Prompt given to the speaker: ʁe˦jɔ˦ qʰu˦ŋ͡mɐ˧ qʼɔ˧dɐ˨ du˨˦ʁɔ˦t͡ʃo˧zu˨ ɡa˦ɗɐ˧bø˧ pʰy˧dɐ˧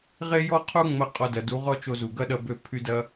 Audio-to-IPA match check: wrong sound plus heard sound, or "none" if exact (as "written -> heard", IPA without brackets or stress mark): a˦ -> ɐ˦